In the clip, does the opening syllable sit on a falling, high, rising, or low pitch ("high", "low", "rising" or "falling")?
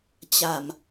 low